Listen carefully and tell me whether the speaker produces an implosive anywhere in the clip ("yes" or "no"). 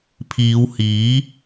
no